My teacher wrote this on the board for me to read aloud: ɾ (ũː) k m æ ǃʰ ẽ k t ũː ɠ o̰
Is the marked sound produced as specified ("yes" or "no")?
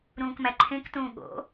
yes